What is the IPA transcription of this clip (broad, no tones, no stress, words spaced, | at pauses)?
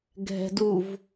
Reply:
ɡʱɛ̤duv